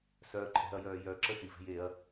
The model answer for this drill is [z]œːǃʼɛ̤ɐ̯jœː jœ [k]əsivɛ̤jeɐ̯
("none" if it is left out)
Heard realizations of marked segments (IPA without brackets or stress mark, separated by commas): s, ǁ